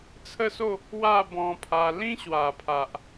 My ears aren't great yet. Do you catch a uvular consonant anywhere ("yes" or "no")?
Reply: no